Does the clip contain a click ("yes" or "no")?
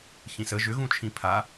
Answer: no